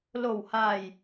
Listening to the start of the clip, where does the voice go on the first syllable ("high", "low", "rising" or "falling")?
low